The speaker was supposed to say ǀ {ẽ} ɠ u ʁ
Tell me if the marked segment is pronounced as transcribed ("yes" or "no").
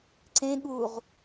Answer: yes